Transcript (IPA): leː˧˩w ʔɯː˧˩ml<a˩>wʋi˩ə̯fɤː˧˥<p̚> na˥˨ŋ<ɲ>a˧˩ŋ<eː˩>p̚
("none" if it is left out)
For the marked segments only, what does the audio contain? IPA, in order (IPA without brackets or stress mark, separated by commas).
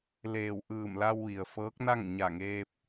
a˧, k̚, ɲ, eː˧